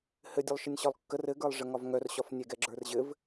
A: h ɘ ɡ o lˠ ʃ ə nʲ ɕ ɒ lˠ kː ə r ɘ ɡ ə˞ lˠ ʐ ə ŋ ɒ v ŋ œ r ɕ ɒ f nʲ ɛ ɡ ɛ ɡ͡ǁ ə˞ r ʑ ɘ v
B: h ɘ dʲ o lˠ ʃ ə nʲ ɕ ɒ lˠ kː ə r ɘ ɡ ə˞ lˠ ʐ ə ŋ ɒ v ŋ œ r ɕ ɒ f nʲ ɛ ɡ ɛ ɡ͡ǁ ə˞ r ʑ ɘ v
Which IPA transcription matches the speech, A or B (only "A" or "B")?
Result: B